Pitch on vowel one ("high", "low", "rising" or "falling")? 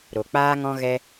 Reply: low